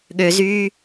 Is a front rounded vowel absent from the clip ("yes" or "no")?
no